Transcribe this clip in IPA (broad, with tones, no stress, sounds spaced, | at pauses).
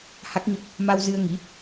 h a˦˥ k̚ ɲ ə˦˥ p̚ | m a˧ w z ɨ˧ ə̯ ŋ i˨˦